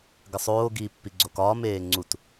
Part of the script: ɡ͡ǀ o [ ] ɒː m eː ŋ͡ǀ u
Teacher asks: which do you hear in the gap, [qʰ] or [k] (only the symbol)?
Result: k